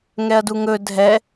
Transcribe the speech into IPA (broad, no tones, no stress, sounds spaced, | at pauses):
ŋ ɛ ɐ̯ d u ŋ ɵ dʱ ɛ